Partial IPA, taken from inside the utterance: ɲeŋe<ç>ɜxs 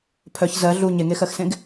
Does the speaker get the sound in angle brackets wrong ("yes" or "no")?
yes